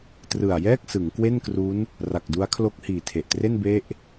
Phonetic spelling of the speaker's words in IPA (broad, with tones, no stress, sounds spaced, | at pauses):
t r ɯ˨˩ a̯ j ɛː˥˩ k̚ s ɯ˩˦ ŋ k w e˥˩ n k r u˦˥ n | r a˨˩ k̚ d u˦˥ a̯ kʰ l o˦˥ k̚ h iː˨˩ tʰ e˨˩ ʔ t r e˥˩ n b e˦˥ ʔ